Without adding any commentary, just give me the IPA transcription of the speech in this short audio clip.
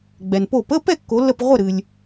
ɡ͡bɛ˩npo˧˩pə˧˥˧ pɛ˥˨kːo˩˧lːə˧˩p ʁʷə˥˨ɾɨ˩lʲ

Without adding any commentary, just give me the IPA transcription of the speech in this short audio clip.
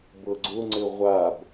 bɤɡ͡ǀʊŋ͡ǀɘ ʁʷab

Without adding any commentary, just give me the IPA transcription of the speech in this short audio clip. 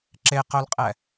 ǁeqœlqʼɛ

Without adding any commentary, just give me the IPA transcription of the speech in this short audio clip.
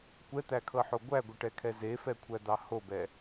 kʷɛt̪ækʰɤħo ɡʷæɡʷɘʈɛkʰɛ zefɛkʷʰæd̪ɑ hobɛ

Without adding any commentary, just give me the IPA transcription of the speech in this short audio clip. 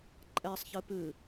ǃʼɛsˤ çɨpɨ

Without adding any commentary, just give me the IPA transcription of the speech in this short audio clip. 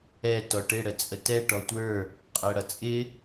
ɛ tɔʈɪ ɽət͡sʼətɛ ʈɔtʷə˞ | qʼæɽʌt͡sʼɪ

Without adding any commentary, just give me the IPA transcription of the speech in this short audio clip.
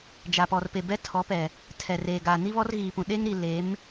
d͡ʒa˨pɔ˨rpe˨ bɛ˦tʰɔ˨˦pɛ˨ | tʰɛ˨reː˨ɡaː˨ ni˦βɔ˦rɣiː˨pũ˨ ɗe˦ŋɾi˨ le˨˦m

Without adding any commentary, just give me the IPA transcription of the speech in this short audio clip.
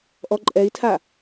ʔɔǃʼɛi̯tʰa

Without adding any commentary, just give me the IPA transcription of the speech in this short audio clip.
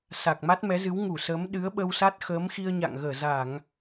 sa˨˩k̚ma˦˥t̚ mɛ˨˦zɨ˨˦w ŋu˧˩səː˨˦m ɗɨ˨˦ə̯ɓə˧wsa˦˥t̚xəː˨˦m xi˧ə̯ɲa̰˧˨ŋ ɣəː˧˩za˧˩˨ŋ

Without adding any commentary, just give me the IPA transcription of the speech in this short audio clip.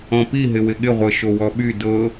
ɔ̃pi ɦɪwɪɠɪʁʷɤ ʃowɔɓy dɤ

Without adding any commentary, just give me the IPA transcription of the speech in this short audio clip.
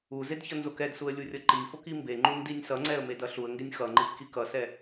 uzed çʌnzokɛdsuə̯ lʲurʲʌǃifok imbeŋ͡ǃun dinʲsʌŋ͡ǀɛə̯ medʌɬuə̯ŋɡenʲ xʌŋ͡ǃif kikʌsɛ

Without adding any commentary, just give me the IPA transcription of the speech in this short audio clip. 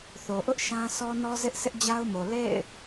θo˨ʔʊ˦ʔ ʃã˦ sɔ˦nɔ˦zɪ˦ʔ sʰɪ˦ʔd͡ʑa˦ʊ̯mo˨ lḛ˦˨ɪ̯

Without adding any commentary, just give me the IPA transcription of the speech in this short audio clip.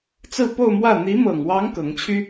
t͡sɹ̩˥˧po˥˧ʊ̯mwä˥˩ n̪i˧˥mɤ˨˩ŋwɑ˧˥ŋ kɤ˧˥ŋt͡ɕʰy˥

